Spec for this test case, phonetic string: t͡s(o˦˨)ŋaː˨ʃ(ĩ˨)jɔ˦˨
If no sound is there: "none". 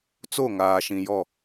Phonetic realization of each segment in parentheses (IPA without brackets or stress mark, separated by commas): o˦˨, ĩ˨